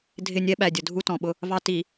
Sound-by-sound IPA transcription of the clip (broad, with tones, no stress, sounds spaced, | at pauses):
dʱ ɪ˦˨ nʲ ɛ˦ ɓ æ˨ dʲ ʊ˨ dʱ u˦ t ɔ̃˨ ɓ ʊ˦ | v ɑ˦ t i˨